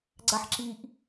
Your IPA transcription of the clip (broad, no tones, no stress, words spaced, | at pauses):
ɡ͡ǀaħǁiʔ